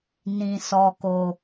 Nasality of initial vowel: nasal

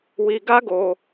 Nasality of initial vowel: oral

